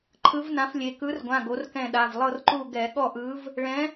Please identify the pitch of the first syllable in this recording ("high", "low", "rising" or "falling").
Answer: rising